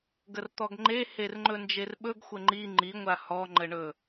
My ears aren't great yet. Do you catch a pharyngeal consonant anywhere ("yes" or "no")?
no